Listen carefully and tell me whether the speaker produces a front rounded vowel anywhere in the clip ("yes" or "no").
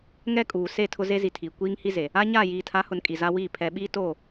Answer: no